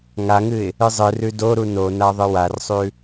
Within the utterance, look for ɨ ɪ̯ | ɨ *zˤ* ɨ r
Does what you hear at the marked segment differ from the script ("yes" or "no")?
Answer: no